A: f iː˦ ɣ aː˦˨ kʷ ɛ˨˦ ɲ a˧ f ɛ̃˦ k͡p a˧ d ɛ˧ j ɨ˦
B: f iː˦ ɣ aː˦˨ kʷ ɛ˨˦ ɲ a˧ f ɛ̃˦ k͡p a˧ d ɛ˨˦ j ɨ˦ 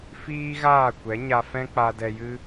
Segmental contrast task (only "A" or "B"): A